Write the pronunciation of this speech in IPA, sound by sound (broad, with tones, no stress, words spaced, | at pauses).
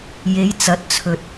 je˨˧jt͡sɐ˨˥t̚t͡sʰɵ˨t̚